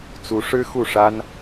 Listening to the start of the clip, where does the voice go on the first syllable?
rising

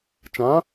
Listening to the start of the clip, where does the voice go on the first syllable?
rising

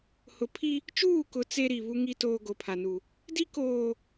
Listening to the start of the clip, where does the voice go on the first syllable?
low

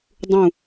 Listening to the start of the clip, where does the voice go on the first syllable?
falling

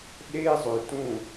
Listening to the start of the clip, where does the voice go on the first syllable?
high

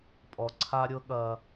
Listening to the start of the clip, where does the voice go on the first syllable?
low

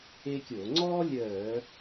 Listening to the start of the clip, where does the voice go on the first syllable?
high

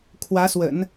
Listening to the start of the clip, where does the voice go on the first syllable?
rising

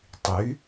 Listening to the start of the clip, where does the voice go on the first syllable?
rising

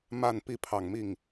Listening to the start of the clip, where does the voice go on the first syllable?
falling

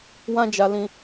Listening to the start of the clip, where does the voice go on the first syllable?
high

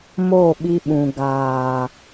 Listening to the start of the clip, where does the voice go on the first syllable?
falling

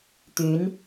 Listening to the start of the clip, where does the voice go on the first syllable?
rising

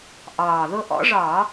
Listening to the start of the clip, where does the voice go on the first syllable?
low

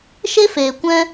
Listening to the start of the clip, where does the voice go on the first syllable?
high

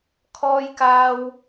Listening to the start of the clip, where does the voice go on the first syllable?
low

